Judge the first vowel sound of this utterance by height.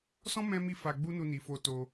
mid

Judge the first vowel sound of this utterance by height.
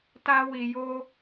low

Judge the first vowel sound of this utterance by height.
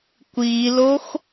high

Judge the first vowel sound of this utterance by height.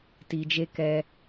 high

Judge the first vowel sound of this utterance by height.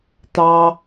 low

